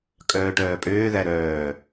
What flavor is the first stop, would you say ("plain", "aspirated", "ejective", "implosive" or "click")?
ejective